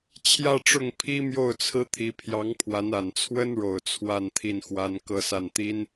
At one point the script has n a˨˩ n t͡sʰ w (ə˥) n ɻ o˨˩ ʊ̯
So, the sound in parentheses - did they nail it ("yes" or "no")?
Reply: yes